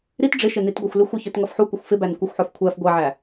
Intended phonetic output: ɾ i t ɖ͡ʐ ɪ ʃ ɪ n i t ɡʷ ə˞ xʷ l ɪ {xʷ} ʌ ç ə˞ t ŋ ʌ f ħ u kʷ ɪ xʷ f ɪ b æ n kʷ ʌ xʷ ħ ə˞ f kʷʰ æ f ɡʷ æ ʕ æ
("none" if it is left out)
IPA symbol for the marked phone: xʷ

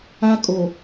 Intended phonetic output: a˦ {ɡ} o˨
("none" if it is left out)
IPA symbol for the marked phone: kʼ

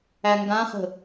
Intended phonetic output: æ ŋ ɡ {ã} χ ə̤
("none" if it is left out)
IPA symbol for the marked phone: ã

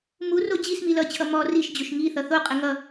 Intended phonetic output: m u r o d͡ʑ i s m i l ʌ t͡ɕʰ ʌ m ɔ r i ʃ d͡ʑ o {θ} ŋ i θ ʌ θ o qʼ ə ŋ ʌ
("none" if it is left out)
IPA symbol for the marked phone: ʃ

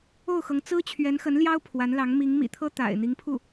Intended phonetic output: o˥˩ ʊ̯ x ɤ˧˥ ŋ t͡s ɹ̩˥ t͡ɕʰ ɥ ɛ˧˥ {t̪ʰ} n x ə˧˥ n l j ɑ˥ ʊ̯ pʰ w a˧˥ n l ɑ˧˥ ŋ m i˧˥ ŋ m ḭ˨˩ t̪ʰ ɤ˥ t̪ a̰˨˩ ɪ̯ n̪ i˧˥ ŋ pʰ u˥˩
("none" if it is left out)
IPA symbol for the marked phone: none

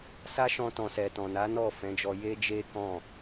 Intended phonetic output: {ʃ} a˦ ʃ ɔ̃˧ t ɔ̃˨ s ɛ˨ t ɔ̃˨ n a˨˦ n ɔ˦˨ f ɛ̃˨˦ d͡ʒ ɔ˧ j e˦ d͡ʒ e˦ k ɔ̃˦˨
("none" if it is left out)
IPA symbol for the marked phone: s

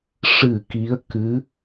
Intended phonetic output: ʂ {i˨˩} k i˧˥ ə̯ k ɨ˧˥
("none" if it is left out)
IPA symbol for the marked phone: ɨ˨˩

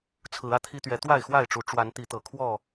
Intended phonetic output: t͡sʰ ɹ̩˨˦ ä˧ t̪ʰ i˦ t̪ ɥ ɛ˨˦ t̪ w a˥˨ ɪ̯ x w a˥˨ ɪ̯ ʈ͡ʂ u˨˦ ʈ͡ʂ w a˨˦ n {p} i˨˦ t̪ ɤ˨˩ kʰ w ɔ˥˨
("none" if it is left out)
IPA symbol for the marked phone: t̪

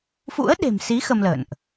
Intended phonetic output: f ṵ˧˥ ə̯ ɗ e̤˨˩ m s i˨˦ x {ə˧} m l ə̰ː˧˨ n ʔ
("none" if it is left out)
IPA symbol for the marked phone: ə˧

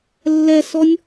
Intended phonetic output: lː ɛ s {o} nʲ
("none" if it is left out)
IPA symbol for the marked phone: ɔ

